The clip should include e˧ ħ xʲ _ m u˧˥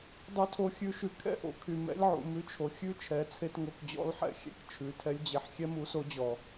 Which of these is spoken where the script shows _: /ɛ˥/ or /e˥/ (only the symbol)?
ɛ˥